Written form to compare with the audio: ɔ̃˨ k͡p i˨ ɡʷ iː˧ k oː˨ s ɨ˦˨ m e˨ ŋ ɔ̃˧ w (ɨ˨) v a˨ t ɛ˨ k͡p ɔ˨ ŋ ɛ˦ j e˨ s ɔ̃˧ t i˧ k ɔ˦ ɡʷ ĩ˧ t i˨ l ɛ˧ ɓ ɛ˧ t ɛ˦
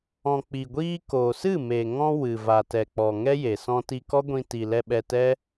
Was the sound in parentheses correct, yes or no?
yes